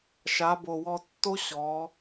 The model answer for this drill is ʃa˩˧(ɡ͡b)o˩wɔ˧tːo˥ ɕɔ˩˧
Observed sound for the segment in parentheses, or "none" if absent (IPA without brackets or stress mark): b